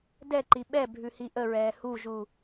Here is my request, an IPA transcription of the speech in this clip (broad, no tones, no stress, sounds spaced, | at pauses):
d ɛ ǃ i ɓ ɛ bʱ ʉ h i ʔ ə ɹ ɛː h u ʒ u